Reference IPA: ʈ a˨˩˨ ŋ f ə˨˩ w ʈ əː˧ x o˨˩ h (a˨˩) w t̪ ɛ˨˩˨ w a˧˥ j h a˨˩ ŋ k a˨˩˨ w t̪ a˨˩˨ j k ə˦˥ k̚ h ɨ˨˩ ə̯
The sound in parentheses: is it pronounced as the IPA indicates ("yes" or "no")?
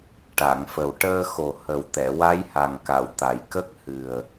no